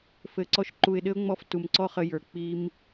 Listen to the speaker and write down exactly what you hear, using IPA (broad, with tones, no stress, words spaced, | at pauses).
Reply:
fɘ˨ ǀɔ˧ʃǃu˨ɪ̯ɗɘ˦ʊ̯ŋ͡mɔ˧f tu˨mǀɔ˦χə˧jə˞˨ k͡pi˦m